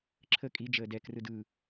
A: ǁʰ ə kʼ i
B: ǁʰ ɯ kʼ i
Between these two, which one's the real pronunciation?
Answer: A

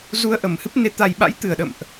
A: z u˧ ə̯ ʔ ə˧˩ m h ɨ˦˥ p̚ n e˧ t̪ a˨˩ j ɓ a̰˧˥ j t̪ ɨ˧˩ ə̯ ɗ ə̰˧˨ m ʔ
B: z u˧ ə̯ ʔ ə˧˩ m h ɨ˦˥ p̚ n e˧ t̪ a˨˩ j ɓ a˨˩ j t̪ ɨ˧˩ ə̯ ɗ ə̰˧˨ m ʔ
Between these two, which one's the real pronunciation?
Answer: A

